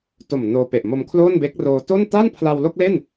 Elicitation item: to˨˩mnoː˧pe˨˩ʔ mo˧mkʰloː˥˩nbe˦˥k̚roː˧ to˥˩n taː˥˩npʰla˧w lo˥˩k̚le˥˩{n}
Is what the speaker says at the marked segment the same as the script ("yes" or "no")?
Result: yes